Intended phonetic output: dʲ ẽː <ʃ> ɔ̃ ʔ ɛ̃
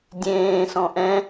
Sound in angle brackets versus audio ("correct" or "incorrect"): incorrect